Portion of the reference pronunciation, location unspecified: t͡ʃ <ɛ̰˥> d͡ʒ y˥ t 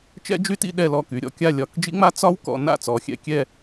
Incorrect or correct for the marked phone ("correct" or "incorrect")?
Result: correct